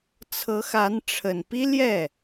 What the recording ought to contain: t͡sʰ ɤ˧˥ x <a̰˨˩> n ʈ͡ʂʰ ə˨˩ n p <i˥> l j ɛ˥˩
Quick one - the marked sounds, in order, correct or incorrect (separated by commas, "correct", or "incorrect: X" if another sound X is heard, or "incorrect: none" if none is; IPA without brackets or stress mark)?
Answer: incorrect: a˧˥, correct